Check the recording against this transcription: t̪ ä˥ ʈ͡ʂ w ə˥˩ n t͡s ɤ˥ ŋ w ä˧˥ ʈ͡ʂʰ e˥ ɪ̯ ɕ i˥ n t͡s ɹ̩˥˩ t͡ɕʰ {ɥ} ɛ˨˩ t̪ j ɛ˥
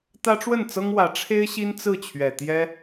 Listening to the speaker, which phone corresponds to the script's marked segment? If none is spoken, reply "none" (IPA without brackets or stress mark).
ɥ